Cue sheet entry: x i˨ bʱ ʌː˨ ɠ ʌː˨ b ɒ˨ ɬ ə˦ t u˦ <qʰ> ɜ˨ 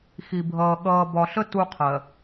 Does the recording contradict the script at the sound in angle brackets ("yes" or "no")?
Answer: no